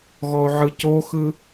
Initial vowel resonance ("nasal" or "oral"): oral